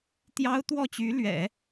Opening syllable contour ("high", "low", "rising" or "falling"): high